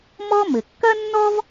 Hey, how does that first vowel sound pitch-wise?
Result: high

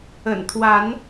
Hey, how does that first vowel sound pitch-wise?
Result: low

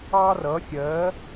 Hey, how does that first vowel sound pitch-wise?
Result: high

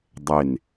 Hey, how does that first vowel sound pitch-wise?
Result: falling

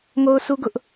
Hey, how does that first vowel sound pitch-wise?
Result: high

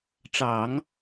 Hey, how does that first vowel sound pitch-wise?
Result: low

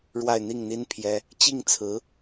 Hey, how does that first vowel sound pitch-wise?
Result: falling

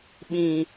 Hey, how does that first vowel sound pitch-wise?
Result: low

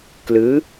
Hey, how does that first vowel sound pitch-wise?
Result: rising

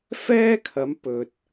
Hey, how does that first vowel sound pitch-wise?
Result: high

